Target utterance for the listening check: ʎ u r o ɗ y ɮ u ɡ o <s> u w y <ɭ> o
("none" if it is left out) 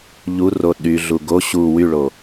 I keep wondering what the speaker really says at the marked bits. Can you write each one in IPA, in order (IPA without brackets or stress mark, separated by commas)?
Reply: ɕ, ɭ